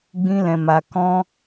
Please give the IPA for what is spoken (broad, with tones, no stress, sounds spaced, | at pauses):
ɡ͡b ĩ˦ l ɛ̃˧ m a˧ k ɔ̃˦